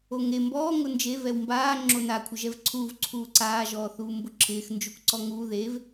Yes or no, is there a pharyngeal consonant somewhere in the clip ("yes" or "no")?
no